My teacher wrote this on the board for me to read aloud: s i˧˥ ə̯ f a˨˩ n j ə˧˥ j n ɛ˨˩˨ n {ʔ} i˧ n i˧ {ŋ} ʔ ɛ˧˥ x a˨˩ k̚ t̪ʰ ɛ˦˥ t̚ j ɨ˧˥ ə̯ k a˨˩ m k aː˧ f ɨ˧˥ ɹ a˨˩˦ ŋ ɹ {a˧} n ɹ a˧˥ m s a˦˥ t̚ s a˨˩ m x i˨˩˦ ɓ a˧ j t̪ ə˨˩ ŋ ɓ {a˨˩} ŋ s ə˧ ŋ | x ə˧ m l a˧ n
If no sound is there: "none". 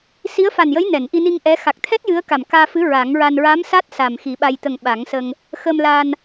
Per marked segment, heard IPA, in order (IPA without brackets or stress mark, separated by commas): ʔ, ŋ, a˧, a˨˩˦